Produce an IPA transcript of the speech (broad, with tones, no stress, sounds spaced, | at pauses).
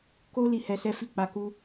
k o˦ l i˦˨ h ɛ˧ s ɛ˦ f i˦˨ k͡p a˨˦ k u˦